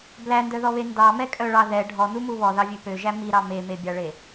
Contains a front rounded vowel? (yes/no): yes